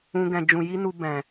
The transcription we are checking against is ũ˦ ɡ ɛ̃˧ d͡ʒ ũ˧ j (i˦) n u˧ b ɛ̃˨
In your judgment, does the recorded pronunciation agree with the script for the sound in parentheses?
yes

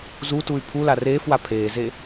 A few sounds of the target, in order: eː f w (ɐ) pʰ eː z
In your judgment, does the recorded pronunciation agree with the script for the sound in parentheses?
no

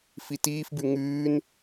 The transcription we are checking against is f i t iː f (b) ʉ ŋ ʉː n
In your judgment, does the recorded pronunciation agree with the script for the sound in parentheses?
yes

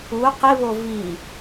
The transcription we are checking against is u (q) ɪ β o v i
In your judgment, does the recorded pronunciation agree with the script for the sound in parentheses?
yes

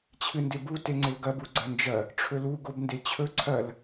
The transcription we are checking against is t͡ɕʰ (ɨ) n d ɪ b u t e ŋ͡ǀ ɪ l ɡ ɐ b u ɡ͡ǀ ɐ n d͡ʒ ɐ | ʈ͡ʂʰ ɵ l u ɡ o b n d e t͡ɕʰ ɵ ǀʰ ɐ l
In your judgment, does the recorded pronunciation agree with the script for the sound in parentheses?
yes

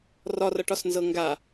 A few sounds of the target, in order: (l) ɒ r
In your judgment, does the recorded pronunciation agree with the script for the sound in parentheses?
no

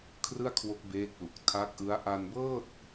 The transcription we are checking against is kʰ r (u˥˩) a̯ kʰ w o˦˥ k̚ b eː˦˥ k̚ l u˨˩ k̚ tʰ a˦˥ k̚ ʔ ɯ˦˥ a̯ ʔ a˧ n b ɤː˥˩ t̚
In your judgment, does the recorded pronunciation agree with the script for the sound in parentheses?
no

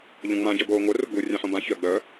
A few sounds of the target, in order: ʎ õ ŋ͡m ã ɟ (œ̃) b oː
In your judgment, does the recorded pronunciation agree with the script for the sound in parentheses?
no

